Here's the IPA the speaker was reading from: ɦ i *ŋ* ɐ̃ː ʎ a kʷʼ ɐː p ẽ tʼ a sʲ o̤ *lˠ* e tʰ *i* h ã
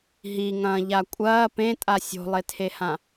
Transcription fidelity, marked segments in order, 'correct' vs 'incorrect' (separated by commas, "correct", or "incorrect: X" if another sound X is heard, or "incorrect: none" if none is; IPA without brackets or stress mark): correct, correct, incorrect: e